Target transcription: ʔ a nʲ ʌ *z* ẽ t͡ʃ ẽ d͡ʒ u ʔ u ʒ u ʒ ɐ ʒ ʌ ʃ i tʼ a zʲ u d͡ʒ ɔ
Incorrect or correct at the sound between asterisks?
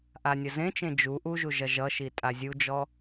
correct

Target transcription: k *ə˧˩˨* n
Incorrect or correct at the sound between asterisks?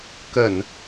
correct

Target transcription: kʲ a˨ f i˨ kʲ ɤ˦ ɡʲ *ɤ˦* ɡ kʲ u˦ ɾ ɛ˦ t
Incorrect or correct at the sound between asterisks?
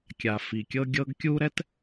correct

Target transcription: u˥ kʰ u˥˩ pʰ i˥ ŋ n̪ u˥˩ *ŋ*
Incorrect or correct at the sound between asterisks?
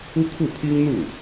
incorrect: none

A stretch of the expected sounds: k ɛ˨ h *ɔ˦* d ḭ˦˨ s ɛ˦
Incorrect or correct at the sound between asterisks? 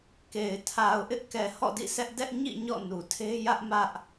incorrect: ɔ̰˦˨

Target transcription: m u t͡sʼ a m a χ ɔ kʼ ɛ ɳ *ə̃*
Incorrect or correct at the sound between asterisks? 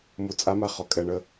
incorrect: ə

